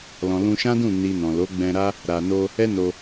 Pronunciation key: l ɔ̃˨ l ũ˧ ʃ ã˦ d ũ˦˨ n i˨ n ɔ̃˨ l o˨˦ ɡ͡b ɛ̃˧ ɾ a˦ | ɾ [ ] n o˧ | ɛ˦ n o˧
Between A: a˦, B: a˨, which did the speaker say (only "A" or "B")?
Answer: B